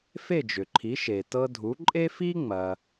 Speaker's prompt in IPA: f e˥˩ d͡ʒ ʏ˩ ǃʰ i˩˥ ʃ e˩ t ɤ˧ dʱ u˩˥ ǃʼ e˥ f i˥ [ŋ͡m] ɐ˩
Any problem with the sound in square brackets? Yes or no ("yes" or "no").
no